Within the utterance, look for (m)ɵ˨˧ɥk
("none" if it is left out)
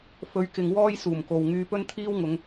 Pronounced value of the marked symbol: f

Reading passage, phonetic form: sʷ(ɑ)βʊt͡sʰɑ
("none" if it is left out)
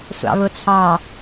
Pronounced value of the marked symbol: ɑ̰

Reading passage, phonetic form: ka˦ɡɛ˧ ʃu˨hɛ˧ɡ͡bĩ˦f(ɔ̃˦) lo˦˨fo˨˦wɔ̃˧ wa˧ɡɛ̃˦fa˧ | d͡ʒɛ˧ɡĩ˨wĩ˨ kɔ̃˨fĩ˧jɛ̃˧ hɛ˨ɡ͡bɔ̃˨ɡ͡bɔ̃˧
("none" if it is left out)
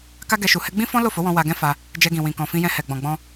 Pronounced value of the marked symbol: ɔ̃˦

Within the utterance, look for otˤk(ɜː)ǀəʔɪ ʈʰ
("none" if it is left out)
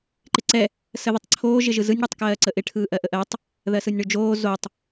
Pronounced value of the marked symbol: ɜː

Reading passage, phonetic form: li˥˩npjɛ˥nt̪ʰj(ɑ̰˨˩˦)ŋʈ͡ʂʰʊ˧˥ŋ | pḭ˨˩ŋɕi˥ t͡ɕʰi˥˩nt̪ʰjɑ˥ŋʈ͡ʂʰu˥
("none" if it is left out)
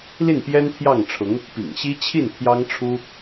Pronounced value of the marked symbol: ɑ˥˩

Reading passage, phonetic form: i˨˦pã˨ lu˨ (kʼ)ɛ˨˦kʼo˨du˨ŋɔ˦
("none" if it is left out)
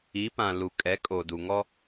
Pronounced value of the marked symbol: kʼ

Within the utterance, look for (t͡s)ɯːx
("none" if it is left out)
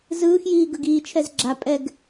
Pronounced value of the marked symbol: z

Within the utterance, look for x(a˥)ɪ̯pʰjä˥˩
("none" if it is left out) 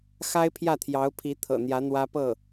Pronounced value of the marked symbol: a˥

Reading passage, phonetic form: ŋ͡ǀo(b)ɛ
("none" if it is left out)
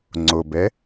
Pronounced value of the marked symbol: b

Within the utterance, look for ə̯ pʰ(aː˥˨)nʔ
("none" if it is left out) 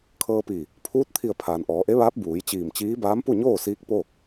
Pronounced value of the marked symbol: aː˩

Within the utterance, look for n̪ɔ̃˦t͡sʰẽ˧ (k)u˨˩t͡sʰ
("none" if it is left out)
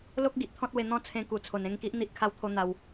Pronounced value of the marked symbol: k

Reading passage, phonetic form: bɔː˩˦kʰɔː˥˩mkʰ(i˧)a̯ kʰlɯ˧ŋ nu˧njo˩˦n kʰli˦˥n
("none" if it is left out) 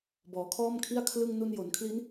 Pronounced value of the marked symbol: i˥˩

